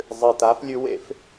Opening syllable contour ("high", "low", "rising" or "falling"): low